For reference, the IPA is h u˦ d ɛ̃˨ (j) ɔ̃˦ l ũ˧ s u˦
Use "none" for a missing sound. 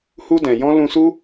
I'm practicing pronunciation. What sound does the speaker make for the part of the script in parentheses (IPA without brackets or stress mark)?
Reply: j